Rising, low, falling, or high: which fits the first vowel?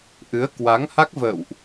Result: rising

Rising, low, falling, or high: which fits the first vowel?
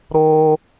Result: high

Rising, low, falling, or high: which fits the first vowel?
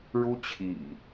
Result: high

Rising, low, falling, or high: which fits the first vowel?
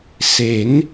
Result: rising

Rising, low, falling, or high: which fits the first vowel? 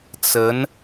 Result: rising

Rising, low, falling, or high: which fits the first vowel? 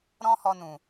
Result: high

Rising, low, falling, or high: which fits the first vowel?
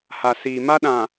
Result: low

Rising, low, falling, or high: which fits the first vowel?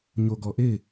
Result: low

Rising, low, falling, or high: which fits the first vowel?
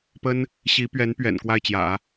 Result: high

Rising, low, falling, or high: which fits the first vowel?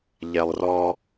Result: low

